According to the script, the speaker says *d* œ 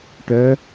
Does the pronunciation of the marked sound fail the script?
yes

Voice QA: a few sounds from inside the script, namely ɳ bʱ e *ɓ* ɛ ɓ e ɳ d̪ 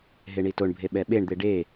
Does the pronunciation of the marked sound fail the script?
no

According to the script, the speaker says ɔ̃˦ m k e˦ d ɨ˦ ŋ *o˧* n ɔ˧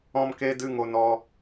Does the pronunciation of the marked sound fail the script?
no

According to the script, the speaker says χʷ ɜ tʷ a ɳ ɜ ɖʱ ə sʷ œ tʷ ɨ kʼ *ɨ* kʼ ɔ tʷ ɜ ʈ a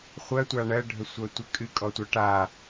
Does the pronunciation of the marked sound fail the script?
no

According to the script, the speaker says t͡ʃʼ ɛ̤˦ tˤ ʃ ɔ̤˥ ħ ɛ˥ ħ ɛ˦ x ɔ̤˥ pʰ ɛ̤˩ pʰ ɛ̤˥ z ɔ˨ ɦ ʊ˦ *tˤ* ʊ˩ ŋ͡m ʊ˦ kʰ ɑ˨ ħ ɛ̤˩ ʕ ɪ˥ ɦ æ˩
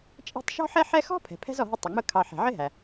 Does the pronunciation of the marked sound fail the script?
no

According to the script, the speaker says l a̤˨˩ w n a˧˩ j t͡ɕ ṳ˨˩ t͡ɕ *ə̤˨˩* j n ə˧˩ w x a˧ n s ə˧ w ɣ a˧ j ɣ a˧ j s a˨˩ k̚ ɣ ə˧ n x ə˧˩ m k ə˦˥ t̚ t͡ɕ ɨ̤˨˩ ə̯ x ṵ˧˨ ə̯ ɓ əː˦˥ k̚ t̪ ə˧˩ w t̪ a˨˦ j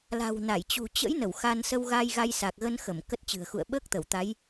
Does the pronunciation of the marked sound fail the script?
yes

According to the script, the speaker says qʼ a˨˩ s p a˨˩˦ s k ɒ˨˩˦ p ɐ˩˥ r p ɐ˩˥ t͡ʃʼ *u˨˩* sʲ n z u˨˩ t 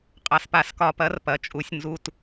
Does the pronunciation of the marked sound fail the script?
no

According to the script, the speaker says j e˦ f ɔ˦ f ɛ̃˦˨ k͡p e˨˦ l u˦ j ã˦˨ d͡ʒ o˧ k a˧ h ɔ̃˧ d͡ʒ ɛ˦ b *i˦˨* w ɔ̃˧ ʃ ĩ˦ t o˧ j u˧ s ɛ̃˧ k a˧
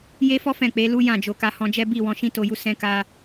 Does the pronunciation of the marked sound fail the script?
no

